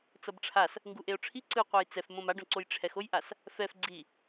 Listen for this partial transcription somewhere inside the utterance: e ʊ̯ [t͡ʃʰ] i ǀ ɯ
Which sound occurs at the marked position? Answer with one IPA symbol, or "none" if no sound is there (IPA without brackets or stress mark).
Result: ʈ͡ʂʰ